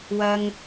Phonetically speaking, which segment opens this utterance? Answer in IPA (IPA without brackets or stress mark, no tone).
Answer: w